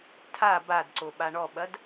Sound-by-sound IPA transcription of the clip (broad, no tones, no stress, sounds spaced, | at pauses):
tʰ a b a d ǀ o ɓ a ɳ ɔ ɓ ɐ d